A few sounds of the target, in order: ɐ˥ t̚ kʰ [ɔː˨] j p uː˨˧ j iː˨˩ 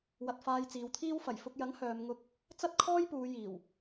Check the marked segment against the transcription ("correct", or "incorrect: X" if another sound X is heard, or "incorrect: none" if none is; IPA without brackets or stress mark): incorrect: ɔː˥